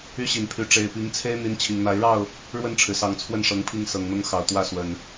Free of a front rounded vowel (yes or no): no